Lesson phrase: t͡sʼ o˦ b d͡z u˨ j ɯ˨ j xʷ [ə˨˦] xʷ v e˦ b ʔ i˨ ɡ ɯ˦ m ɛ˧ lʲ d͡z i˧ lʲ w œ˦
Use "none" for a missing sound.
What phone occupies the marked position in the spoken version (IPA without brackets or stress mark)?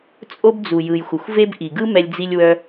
ə˨